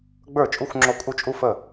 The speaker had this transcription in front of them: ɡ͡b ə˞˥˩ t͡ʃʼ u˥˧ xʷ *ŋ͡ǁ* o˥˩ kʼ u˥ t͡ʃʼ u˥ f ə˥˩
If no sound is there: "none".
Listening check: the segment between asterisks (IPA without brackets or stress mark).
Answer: ŋ͡ǁ